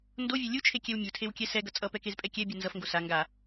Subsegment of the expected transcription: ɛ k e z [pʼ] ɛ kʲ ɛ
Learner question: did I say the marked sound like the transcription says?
yes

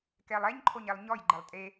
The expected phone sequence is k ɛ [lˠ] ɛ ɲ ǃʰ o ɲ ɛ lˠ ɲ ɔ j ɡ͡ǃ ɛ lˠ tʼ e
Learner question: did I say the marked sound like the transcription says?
yes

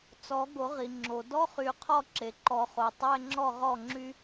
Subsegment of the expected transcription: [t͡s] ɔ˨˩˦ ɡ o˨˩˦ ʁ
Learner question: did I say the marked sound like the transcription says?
yes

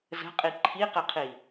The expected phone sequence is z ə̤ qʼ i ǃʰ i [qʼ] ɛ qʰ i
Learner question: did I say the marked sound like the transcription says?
no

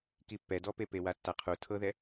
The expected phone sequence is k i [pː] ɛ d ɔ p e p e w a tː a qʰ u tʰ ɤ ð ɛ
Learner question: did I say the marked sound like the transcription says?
yes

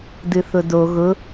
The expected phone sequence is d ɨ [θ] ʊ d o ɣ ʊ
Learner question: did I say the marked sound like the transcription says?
yes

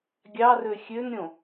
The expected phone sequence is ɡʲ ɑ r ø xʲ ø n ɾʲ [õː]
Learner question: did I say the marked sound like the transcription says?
no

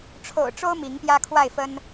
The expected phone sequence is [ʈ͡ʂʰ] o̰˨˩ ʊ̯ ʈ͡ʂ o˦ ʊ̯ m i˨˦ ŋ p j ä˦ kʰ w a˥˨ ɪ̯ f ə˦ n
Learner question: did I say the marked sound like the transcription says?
yes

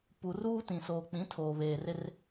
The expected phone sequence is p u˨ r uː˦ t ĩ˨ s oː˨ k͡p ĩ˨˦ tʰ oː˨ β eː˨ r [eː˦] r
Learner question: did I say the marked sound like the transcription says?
no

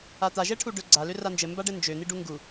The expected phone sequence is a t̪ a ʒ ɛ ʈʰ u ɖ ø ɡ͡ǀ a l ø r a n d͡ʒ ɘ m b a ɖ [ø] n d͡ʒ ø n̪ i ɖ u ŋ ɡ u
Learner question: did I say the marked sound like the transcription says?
no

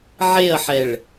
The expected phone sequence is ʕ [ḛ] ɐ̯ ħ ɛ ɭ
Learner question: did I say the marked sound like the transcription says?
no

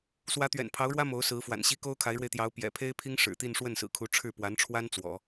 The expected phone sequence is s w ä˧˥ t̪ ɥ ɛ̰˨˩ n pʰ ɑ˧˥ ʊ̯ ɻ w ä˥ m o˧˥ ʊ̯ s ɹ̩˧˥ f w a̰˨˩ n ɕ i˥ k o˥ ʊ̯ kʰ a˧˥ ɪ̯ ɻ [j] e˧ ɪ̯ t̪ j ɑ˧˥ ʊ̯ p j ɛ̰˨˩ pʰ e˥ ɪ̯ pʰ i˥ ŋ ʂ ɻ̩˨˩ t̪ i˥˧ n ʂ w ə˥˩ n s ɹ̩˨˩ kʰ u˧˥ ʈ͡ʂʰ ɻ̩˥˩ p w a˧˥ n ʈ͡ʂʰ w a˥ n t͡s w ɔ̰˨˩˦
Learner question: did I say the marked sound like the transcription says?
no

